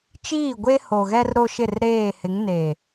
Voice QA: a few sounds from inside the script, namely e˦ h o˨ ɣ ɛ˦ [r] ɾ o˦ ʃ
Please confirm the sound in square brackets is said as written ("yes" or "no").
yes